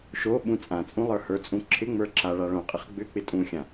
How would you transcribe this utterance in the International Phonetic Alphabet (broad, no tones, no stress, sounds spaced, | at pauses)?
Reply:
ʃ o ɓ ũ t͡sʼ ã t͡sʼ ũ lˠ ə˞ h ə˞ t͡sʼ ũ ǁʰ ɪ ŋ͡m ə˞ ǁ a ɭ a ɭ õ qʼ ɪ χ ɡ͡b ʏ k͡p ɪ tʼ ũ xʲ ã